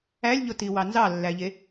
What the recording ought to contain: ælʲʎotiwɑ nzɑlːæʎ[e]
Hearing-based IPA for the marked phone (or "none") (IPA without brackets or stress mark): e